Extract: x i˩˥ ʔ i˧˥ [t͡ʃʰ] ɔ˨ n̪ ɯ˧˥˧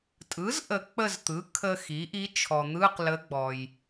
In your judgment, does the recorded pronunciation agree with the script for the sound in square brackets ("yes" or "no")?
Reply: yes